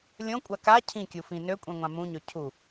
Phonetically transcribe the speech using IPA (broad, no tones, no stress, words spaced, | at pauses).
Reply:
lʲõkʷʼa ka cʰĩkʲufĩ nøkʷʼɛ̃ŋʷã mũɲø cʰu